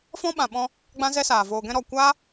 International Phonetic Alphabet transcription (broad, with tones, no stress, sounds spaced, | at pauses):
f ɔ̃˦ ɓ ã˨ ɓ ɔ̃˧ | ɡ͡b ã˦ z ɛ˦ s aː˨ v oː˨ ɡ ɛ̃˧ ɾ ɔ˨ kʷ aː˦